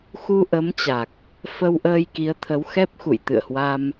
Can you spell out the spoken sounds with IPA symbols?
x u˧ ʔ ə˨˦ m t͡ɕ a˨˩ k̚ | f ə˧ w ʔ əː˧ j k i˨˦ ə̯ t̪ʰ ə˨˦ w x ɛ˦˥ p̚ x ṵ˧˨ j t̪ ɨ̰˧˨ ə̯ h w a˧ m

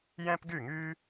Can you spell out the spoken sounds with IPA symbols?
j ɛ̃˥ p ɡ y˥˧ ŋ y˥

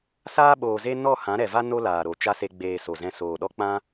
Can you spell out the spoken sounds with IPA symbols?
s aː˦ ɓ oː˨ z e˦ n ɔ˦˨ h ã˨˦ ɾ ɛ˨ v a˦ n o˧ l aː˨ ɾ o˨ t͡ʃ a˦ s e˧ ɡ͡b eː˨ s o˨ z ɛ̃˧ s oː˨ ɗ ɔ˦ k͡p ã˦

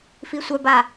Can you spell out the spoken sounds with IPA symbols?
f i sʷ œ b a

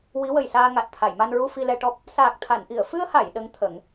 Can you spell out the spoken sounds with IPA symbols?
w i˧˥ w ə˨˩ j s aː˧ ŋ a˨˩ t̚ t̪ʰ a˨˩˨ j m a˧ n ɹ u˧ f i˧ l ɛ˧ ʈ ɔ˦˥ p̚ | s aː˨˩ k̚ t̪ʰ a˨˩˨ n ʔ i˨˩˨ ə̯ f ɨ˧ ə̯ h a˨˩˨ j ɗ ə˧˥ ŋ t̪ʰ ə˨˩˦ ŋ

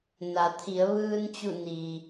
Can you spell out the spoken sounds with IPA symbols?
n a˩˧ t̪ʰ i˩˧ ə̯ ʋ ɯː˧ n t͡ɕ u˧˩ n i˩

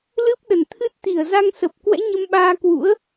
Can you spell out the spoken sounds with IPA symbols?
l ɨ˦˥ p̚ ɗ ə˧˩ n t̪ʰ ɨ˦˥ t̚ t̪ i˧˩ ə̯ z a˧ ŋ s ə˨˩ p̚ k w ɛ̰˧˥ ɲ ə˧ m ɓ aː˧ k w ṵ˧˥ ə̯

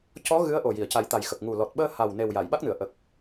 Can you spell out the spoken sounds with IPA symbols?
c ɔ˧˥ ɣ ɨ˧˥ ə̯ ʔ o˨˩ j i˨˩˨ ə̯ c a˨˩˦ j t̪ a˨˩ j x ə˨˩ k̚ ŋ u˨˩ l ɔ˨˩ t̚ ɓ əː˧ h a˨˩ w n e˨˩ w j a˨˩˨ j ɓ a˦˥ k̚ n ɨ˨˩˨ ə̯ ʔ ə˨˩ k̚

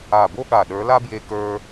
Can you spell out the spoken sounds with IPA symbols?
a˧˩ b o˥ ɠ a˧˩ ɗ ə˞˨˥ l a˥ b j e˧ k ə˞˧

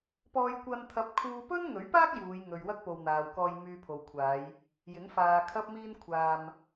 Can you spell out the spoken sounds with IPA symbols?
p ɔː˧ j kʷ ɐ˧ n t̪ʰ ɐ˧ p̚ kʰ uː˧ p ɵ˥ n ŋ ɵ˨˥ ɥ p aː˥ k̚ j uː˨˧ j ŋ ɵ˨ ɥ w ɐ˥ k̚ p o˨ w n̪ aː˨ w k ɔː˧ j m yː˧ pʰ o˨ w kʷʰ aː˨˧ j | j ɪ˨˥ ŋ f aː˧ kʰ ɐ˥ p̚ m iː˥ n kʷʰ aː˧ m

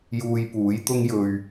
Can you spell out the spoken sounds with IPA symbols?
j uː˧ j p uː˨˥ j t̪ ʊ˥ ŋ j ɵ˧ ɥ

